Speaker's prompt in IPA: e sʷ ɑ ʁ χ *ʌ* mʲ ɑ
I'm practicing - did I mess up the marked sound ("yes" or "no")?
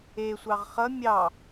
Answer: no